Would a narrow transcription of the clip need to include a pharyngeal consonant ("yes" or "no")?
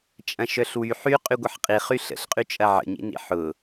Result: yes